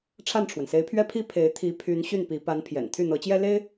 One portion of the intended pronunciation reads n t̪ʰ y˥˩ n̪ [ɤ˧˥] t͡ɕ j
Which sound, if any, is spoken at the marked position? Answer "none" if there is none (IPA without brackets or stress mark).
ɤ˧˥